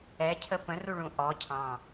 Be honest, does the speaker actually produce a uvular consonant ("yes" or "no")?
no